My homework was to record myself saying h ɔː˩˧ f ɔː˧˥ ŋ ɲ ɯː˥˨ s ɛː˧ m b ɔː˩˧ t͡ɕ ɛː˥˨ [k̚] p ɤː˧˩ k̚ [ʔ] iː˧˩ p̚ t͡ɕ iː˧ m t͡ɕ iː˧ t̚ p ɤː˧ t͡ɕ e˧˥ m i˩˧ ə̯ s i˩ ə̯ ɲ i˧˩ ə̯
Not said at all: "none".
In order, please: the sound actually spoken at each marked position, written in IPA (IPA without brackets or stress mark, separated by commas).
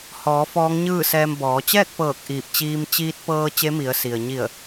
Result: k̚, ʔ